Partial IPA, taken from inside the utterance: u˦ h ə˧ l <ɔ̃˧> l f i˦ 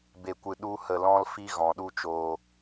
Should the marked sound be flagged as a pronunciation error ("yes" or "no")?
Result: yes